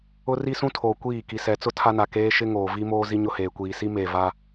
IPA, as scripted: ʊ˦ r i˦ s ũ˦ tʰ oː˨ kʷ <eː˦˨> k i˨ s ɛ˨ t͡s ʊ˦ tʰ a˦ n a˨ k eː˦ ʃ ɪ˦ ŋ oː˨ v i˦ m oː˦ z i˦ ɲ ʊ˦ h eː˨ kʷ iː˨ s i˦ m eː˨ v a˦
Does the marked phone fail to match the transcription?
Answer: yes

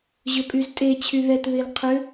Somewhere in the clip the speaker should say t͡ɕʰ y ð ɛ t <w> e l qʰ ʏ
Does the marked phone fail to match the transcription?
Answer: yes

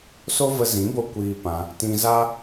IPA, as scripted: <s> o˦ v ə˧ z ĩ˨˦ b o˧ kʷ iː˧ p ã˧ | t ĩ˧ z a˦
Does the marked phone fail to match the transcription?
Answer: no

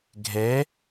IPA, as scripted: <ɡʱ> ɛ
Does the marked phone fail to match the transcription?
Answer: no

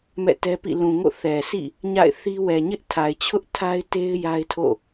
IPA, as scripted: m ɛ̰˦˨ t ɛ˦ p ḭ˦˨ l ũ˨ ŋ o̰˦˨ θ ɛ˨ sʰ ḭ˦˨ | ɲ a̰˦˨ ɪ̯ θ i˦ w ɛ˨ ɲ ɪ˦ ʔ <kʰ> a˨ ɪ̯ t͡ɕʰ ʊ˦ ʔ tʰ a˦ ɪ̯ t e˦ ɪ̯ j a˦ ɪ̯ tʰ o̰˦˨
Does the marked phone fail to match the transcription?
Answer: yes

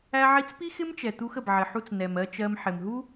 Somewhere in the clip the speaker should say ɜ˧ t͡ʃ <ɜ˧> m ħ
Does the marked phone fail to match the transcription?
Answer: no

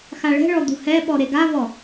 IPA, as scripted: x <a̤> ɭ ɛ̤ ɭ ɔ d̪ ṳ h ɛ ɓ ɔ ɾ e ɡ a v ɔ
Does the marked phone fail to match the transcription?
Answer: yes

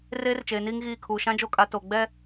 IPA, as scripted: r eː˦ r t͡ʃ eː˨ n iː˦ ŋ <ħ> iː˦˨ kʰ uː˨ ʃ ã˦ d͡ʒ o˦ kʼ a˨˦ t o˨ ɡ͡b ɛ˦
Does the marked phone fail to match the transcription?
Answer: yes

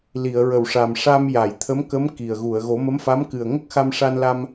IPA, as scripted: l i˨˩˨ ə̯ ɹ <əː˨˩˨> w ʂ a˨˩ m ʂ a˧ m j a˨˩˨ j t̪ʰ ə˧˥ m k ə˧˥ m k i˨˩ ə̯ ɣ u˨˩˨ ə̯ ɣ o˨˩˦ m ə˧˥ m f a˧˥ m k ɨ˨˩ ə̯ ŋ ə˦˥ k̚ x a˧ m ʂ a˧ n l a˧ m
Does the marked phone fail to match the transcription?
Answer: yes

